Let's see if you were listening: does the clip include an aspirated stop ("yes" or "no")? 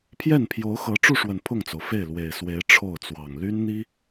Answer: yes